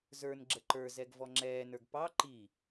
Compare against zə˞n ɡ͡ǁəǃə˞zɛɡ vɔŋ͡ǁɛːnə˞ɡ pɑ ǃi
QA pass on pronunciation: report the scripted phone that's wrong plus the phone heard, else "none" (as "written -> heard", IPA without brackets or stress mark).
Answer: none